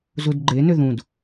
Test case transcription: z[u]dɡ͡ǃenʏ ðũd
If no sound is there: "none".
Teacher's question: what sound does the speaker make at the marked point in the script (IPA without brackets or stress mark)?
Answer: u